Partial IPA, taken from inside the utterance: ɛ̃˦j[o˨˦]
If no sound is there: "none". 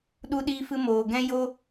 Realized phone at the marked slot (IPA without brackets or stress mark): o˦